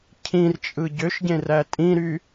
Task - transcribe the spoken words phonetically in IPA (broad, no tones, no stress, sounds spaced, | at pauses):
cʰ ĩ r t͡ʃʼ ɯ ɟ ø ʃ ɟ ẽ r æ tʼ ĩ ɾ y